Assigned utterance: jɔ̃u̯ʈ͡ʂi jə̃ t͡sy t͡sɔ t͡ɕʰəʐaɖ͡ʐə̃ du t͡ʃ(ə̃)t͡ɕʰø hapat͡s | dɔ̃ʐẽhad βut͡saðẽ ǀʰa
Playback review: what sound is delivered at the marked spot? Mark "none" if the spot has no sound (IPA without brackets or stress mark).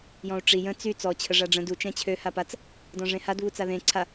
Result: ɛ̃